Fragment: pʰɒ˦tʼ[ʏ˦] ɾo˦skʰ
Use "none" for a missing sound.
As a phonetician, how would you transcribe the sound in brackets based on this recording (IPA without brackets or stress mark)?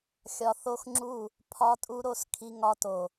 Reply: u˦